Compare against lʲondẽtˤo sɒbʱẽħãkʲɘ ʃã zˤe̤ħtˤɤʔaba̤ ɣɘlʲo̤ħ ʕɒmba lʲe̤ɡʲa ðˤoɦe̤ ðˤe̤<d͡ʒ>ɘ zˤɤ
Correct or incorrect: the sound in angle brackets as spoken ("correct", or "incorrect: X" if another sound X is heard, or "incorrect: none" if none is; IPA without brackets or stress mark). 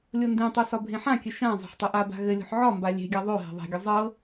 incorrect: ɡʲ